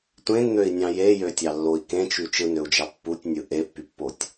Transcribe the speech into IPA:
tʷ ẽ n n̪ ø i̯ nʲ ɑ̃ j e j ø tʲ ɑ lː o i̯ k ẽ t͡ʃ y t͡ʃ ɯ n ø u̯ d͡ʒ ɑ pː u tʲ nʲ ɯ ʔ e pː y pː o tʲ

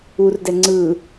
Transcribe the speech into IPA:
u r d ɛ ŋ͡ǀ ɯ

